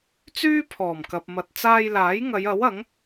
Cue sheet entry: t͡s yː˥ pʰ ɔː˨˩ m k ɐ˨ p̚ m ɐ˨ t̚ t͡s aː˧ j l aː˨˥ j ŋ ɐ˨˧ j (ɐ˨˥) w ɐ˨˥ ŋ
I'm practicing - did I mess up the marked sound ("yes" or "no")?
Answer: no